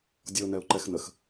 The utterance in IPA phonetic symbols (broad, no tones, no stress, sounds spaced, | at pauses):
dʲ ɔ ʊ̯ n ɛ ʊ̯ ǃ ɛ x n ə x